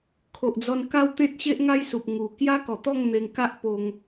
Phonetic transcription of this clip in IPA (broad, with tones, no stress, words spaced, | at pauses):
kʰo˨ʔd͡zɔ˧nka˦w t̪ẽ˦t̚ ɕe˦ʔŋa˦jsu˨p̚ ŋu˨˩ kja˦kɔ˨˩t̪ɔ˥˧ŋ n̪e˧ŋka˦ʔ po˧ŋ